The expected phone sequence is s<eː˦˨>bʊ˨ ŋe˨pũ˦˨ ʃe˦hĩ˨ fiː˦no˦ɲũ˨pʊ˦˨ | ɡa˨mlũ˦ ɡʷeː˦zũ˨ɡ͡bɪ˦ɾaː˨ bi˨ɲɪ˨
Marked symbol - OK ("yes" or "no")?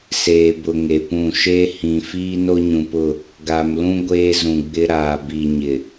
no